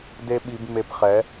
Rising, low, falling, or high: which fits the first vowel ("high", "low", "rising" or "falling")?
high